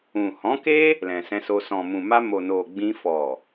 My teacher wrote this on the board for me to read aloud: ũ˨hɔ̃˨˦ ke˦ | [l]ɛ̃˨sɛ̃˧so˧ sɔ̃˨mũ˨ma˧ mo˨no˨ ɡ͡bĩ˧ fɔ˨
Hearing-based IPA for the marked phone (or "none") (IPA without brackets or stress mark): l